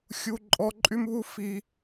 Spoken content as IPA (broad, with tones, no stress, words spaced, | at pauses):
xʲu˧ǃʼɔ˧ ǃʼy˦mβu˦ fi˧